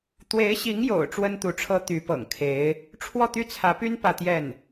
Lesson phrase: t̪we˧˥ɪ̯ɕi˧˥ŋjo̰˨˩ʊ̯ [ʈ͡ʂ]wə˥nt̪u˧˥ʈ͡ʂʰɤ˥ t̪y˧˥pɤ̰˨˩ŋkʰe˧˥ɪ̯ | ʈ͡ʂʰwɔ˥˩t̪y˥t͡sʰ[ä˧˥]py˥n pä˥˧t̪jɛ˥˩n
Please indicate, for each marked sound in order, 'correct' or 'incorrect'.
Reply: correct, correct

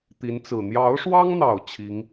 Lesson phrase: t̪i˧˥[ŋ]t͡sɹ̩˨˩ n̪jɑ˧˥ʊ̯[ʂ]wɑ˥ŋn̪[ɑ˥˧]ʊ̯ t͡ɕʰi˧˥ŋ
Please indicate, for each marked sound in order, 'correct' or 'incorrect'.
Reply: incorrect: n, correct, incorrect: ɑ˨˩

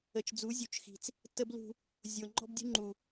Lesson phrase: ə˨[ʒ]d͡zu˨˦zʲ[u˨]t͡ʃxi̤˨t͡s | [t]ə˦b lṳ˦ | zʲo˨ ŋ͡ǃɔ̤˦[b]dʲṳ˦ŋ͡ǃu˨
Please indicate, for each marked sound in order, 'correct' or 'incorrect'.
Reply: incorrect: t͡ʃ, correct, correct, correct

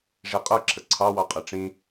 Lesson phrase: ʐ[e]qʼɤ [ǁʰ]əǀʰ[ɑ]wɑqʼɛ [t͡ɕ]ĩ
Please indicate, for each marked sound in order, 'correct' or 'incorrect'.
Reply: correct, correct, correct, incorrect: ʈ͡ʂ

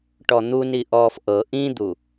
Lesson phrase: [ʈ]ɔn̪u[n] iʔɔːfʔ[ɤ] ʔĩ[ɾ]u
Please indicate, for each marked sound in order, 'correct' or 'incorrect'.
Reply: correct, correct, correct, incorrect: d̪

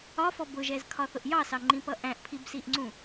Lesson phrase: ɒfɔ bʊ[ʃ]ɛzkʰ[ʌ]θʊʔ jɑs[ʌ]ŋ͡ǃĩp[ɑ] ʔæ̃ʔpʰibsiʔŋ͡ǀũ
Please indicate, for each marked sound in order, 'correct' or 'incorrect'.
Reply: incorrect: ʒ, incorrect: ɒ, incorrect: ɑ, incorrect: ʌ

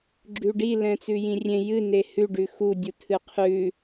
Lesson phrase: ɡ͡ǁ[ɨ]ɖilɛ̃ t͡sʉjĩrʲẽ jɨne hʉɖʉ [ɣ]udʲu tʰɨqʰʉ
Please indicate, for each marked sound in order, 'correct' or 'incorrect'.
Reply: incorrect: ʉ, incorrect: x

